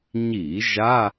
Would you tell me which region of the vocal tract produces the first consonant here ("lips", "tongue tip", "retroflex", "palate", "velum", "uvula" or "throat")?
palate